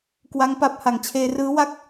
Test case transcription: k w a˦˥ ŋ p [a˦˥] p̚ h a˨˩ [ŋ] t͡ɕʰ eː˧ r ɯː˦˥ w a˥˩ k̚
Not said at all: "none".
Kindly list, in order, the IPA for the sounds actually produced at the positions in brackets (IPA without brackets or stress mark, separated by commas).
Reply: a˦˥, ŋ